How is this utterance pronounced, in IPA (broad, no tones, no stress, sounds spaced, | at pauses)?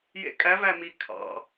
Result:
j ḛ kʼ æ v æ m i kʰ ɑ̰